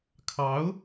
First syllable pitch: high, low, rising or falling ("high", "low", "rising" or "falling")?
rising